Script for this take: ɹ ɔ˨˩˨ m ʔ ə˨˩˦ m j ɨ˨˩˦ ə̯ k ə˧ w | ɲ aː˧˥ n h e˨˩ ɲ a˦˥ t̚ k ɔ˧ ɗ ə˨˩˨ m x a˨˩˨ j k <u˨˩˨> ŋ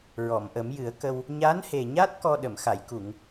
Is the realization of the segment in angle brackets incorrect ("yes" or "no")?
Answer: no